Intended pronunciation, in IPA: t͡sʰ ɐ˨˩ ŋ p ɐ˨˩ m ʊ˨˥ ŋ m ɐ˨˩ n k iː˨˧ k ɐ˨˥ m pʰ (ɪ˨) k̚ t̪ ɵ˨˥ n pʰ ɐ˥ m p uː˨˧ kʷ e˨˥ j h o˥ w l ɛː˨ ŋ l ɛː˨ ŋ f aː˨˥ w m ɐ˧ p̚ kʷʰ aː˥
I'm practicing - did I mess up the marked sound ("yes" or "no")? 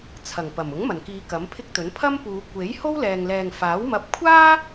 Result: yes